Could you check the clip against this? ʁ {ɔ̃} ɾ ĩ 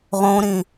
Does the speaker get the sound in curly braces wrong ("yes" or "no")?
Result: yes